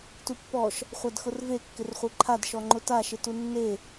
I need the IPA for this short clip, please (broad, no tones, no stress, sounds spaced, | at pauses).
t u pː ɔ ʃ | χʷ a d x ʊ r v e kː ɪ r χʷ e ǃʰ a d ʃ ɔ ŋ͡ǃ ʊ t a ʃ ɪ t u nː e